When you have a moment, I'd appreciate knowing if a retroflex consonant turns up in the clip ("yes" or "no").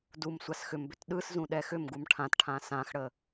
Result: yes